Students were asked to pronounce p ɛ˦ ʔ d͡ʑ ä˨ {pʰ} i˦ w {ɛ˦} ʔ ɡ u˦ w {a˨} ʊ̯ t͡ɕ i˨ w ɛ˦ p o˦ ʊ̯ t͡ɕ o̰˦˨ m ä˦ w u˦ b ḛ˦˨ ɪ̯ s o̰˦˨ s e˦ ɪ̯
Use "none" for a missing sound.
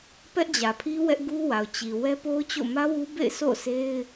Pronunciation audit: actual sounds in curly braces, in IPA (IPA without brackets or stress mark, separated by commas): pʰ, ɛ˦, a˨